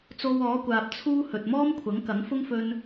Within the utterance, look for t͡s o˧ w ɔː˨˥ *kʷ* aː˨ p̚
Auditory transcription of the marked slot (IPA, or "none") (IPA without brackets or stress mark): kʷ